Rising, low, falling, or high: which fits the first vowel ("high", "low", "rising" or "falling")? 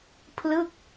falling